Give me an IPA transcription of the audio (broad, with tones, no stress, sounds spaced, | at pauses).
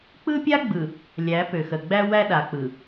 k͡p ɯ˦ pʲ a˦ ɡ͡b ɯ˨ | lʲ æ˨˦ p ø˨ x ə˨ ɡ͡b æ˦ w æ˦ ɗ a˨ k͡p ɯ˨